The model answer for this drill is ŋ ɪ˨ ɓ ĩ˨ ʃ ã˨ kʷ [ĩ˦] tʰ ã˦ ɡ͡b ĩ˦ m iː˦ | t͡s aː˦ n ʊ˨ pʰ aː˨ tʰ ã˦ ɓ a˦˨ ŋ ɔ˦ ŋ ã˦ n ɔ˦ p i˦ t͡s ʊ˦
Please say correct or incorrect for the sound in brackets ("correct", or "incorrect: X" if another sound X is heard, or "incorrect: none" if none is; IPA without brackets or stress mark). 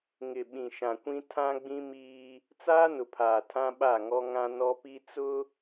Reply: correct